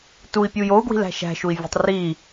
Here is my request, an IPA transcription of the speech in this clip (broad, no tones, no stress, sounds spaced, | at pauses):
t u i̯ pʲ u j o u̯ ɡ w i̤ l æ̤ ʃ æ̤ ʃ u i̯ vʲ e̤ tˤ r i